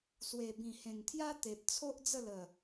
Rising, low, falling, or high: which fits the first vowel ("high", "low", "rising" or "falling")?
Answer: low